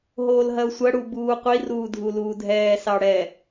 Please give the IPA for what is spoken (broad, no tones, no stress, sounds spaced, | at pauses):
ɦ oː l ɦ ɐ o̯ sʷ ɐ ɽ u b uː qʷ i r uː dʱ u l uː dʱ ɛː s ɑ ɽ ɛ